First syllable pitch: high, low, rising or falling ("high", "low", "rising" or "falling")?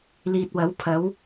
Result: low